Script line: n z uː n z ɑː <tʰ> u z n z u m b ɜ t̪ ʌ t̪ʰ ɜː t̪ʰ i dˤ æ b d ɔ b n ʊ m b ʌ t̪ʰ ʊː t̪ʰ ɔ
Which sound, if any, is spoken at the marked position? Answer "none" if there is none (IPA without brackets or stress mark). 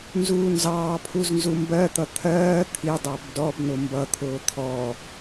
pʰ